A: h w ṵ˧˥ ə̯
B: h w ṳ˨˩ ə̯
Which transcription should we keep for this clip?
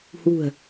B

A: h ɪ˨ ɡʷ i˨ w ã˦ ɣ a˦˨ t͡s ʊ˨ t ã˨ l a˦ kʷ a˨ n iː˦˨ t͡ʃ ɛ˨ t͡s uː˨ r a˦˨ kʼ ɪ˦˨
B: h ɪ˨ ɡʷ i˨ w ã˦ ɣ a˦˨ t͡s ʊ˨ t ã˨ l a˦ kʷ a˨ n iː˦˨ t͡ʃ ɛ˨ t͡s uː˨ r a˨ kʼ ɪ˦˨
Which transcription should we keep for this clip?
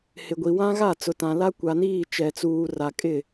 B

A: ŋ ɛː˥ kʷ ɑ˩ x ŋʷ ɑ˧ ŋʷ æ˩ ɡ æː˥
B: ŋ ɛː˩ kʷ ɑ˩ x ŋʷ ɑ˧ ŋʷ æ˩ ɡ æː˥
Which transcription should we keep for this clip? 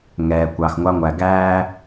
B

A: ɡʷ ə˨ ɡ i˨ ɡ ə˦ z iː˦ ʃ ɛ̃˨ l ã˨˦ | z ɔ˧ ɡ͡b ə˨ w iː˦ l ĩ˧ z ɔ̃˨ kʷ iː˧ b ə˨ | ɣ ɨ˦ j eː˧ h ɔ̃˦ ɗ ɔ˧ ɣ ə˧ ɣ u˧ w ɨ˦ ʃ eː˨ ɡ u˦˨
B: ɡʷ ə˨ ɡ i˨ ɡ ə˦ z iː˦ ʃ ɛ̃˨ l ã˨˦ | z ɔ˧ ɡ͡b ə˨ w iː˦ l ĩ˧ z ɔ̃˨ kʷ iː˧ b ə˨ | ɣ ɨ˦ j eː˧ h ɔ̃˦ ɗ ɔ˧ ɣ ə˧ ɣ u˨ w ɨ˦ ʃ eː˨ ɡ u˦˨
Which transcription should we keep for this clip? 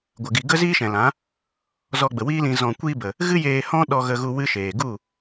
A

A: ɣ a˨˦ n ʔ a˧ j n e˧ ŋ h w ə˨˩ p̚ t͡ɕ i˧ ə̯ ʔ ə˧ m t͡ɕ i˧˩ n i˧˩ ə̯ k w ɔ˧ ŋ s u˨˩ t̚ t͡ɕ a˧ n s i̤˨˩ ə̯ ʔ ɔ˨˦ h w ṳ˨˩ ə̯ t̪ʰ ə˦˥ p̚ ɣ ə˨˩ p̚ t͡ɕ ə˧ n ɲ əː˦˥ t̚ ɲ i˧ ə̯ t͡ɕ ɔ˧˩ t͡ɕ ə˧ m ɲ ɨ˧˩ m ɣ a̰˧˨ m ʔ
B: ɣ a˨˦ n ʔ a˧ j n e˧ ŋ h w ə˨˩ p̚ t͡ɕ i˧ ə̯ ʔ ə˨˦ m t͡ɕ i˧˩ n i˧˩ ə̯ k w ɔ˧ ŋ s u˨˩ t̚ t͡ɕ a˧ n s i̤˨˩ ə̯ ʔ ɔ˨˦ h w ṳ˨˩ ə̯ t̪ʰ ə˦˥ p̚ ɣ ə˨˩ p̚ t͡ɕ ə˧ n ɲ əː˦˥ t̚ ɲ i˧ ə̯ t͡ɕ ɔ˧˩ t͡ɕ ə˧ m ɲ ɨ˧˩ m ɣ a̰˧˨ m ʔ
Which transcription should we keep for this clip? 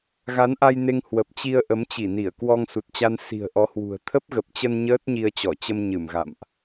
B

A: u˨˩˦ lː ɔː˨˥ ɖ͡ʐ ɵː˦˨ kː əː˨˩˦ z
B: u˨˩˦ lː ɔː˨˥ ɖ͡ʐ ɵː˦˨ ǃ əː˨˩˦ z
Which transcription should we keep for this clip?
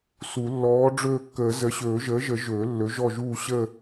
A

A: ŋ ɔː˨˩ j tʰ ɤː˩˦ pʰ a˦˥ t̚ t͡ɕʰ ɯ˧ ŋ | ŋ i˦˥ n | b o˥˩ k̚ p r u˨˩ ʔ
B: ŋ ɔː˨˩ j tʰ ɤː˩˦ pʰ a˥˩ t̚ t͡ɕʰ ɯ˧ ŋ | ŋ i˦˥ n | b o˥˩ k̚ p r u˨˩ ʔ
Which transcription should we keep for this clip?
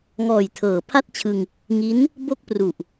B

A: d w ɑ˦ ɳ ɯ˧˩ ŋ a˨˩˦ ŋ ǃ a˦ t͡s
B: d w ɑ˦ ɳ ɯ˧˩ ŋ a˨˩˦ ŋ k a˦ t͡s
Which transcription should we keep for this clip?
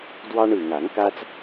B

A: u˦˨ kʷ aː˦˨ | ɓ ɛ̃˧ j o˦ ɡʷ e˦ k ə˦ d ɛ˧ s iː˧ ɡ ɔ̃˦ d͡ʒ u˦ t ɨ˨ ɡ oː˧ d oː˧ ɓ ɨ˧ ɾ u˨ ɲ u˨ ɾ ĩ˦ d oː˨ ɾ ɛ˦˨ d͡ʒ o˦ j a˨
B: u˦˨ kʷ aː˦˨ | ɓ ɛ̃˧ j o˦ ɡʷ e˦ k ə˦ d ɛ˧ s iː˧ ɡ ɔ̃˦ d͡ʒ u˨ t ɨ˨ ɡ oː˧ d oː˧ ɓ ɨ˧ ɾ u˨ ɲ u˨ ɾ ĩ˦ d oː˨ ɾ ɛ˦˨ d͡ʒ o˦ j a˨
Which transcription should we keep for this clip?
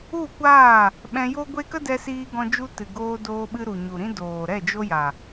A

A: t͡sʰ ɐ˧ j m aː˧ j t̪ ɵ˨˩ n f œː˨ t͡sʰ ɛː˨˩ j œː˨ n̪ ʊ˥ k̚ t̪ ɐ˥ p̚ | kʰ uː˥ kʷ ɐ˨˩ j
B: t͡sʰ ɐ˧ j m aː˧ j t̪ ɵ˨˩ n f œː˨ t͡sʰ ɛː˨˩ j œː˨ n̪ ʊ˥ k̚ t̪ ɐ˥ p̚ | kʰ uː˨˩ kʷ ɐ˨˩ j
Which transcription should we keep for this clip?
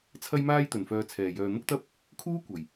A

